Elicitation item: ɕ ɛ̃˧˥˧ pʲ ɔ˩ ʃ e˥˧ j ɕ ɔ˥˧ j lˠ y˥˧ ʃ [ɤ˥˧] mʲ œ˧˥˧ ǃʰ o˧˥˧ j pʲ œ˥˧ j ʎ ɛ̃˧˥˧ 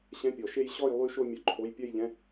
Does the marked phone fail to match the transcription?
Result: yes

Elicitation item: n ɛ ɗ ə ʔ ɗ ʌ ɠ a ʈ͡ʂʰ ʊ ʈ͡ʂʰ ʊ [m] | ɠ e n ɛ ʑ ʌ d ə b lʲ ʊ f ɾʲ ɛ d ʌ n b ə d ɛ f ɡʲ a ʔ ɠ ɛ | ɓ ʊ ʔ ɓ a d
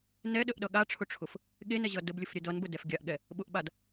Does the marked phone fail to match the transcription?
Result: yes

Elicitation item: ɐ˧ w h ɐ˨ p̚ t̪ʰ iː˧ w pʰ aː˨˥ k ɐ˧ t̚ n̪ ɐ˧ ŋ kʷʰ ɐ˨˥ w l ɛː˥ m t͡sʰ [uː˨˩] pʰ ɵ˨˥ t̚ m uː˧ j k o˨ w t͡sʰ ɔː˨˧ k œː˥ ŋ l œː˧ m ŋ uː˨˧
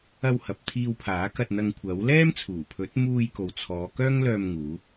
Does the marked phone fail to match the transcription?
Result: no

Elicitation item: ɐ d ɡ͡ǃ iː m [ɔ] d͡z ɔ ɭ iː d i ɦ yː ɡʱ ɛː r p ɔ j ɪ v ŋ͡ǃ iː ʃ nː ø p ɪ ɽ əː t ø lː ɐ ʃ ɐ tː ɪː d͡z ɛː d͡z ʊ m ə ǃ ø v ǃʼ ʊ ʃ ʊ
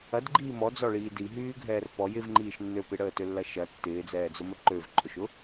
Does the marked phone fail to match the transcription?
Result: no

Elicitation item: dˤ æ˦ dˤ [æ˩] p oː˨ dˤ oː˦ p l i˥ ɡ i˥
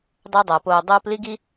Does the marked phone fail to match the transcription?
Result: no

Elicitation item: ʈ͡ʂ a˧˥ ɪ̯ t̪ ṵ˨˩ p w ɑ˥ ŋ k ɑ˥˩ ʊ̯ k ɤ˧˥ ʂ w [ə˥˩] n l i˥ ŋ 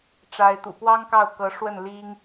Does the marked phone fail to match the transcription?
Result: no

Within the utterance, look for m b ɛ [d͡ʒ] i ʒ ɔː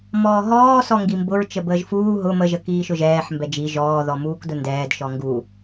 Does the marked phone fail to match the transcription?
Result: no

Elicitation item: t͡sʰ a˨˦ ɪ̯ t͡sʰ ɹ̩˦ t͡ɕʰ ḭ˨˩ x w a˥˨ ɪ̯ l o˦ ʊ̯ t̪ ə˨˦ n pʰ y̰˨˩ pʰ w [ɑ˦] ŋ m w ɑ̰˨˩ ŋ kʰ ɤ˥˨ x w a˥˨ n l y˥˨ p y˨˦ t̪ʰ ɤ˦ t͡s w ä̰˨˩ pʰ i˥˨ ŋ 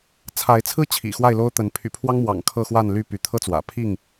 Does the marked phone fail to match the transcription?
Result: no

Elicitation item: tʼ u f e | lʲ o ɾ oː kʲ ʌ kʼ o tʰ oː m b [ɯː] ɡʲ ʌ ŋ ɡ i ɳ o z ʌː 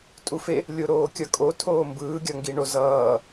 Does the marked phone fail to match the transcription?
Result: no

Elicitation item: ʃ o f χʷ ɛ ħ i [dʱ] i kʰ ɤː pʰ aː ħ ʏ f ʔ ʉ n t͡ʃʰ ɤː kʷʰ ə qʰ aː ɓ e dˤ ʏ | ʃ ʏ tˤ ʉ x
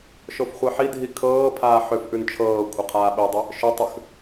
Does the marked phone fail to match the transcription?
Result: no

